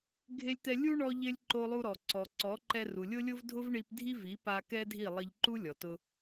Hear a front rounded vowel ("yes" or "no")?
no